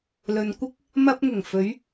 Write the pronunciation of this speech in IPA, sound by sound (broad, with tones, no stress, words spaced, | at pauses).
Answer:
lɵ˨nkʷɪ˥k̚ | mɐ˧p̚ŋʊ˨˩ŋ fɵ˨˧ɥ